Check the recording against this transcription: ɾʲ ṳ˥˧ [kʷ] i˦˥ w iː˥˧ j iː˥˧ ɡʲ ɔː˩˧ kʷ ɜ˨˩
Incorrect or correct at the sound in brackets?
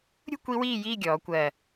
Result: correct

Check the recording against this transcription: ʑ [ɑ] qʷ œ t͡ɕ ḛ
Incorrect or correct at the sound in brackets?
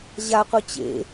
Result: incorrect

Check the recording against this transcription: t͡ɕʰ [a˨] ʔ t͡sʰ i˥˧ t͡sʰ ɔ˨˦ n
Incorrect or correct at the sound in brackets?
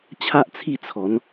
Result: incorrect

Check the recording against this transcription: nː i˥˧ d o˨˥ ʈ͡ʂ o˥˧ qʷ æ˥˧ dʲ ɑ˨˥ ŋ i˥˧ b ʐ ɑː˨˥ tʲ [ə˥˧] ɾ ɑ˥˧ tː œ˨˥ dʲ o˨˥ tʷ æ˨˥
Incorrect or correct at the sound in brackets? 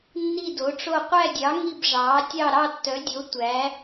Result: incorrect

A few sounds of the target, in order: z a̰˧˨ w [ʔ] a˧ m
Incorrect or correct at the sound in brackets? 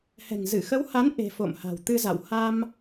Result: incorrect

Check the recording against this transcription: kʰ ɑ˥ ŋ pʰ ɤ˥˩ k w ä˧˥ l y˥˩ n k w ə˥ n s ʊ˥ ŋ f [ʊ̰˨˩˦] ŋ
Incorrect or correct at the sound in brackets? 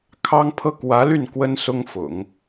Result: correct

